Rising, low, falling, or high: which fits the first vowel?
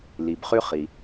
low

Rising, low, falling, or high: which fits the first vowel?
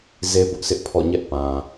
high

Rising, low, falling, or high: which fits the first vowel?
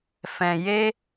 low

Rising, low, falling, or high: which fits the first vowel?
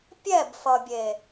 falling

